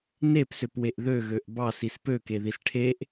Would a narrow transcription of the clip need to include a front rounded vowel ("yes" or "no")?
yes